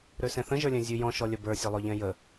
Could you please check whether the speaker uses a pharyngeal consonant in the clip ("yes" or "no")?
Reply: no